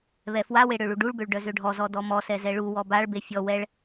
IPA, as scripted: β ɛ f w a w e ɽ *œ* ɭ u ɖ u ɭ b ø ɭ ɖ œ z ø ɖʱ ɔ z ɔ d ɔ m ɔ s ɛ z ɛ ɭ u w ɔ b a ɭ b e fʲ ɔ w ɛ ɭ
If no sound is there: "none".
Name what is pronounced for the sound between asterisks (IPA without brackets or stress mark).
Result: ø